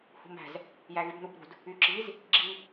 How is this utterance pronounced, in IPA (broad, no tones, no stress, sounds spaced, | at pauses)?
h ṳ m æ̤ z | j æ ɣ y b n u b ɾ ṳ d | y ǁ i z | ɡ͡ǁ i